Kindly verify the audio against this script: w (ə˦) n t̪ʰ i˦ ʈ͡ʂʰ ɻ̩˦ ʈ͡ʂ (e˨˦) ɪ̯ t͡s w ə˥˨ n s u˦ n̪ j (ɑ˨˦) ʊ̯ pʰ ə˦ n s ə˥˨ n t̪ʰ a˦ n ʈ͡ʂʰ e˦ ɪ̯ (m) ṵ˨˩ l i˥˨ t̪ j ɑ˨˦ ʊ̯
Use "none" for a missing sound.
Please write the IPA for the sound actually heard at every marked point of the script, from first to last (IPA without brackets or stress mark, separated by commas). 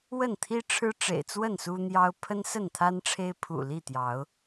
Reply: ə˥˨, ḛ˨˩, ɑ˦, pʰ